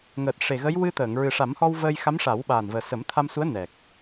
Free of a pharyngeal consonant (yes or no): yes